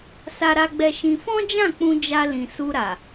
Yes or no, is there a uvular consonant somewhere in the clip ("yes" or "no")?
no